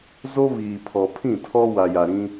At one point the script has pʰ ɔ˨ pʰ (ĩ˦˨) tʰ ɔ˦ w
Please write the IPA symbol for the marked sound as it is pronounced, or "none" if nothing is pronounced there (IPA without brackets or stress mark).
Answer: ĩ˦˨